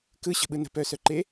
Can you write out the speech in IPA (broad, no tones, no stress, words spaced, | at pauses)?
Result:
kɯɕə̤ɓɯ nə̤pœsœǃe